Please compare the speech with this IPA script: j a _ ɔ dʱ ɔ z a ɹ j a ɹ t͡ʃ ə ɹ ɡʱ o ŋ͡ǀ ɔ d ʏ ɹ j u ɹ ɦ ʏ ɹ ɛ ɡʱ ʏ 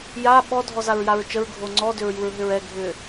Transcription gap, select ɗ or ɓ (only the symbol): ɓ